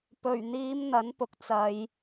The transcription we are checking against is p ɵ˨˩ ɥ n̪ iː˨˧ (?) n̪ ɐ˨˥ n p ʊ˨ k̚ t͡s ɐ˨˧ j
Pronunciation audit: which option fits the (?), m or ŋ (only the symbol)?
m